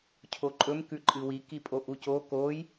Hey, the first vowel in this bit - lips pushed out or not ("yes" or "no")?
yes